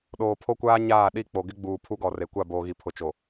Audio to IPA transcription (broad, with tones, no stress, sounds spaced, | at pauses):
ɗ oː˨ pʰ o˦ kʷ aː˦ ɲ aː˦˨ ɗ i˦˨ k͡p o˨ ɡ ɪ˦ ɡ͡b uː˨ pʰ u˦ ɡ ɔ˨ r e˨ kʷ a˦˨ b oː˨ ɣ i˨ pʰ ʊ˨ t͡ʃ o˨